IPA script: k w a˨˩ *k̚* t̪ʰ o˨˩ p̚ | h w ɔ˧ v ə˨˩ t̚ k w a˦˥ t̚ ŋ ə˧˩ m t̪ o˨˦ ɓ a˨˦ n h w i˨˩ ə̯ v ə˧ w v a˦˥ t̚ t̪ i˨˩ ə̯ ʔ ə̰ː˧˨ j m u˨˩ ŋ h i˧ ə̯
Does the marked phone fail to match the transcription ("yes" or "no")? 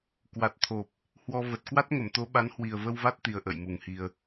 yes